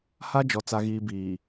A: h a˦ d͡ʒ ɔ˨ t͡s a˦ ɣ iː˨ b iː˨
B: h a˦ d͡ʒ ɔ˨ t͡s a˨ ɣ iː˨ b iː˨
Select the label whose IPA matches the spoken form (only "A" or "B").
B